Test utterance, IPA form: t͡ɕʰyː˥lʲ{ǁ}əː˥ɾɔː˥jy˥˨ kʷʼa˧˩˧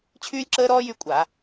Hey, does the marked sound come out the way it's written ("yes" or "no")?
yes